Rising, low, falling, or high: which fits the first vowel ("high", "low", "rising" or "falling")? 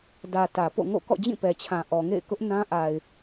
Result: low